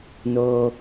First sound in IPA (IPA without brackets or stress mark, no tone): n